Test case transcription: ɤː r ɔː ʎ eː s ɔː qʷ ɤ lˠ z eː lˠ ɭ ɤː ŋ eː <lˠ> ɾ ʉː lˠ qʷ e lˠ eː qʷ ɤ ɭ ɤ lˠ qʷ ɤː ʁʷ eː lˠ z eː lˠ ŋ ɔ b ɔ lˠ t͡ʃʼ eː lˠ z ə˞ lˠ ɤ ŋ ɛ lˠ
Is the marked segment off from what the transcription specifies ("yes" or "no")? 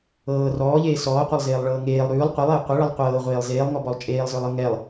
no